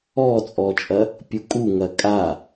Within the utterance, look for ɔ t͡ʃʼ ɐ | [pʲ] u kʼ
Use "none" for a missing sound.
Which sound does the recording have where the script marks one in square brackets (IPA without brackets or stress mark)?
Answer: pʲ